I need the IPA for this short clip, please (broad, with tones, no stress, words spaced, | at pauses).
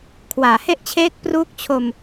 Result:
kʰwaː˩˦he˥˩ʔt͡ɕʰeː˦˥k̚ pruː˦˥k̚t͡ɕʰo˧m